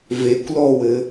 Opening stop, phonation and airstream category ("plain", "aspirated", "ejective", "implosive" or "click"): plain